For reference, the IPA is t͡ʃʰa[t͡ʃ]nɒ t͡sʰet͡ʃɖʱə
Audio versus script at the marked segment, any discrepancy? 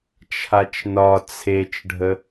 no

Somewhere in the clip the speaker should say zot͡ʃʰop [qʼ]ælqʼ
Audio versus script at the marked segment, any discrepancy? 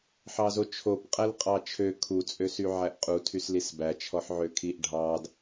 no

